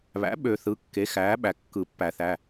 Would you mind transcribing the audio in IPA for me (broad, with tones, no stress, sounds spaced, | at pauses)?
β æ̰˩˥ ɓ ø˨˩˦ θ ɯ˩˧˩ kː e˩˥ x æː˩˥ ɓ æ˩ kː ɯ˨˩˦ pː æ˨˩˦ θ æ˩˧˩